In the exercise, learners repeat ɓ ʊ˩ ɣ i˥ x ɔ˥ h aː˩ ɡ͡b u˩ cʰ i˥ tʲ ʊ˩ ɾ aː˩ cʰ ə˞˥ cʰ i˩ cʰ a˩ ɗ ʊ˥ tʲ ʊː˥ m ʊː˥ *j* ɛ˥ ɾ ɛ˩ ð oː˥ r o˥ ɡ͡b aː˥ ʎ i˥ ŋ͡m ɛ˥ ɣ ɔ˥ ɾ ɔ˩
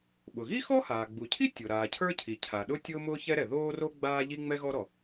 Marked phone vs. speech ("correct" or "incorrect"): incorrect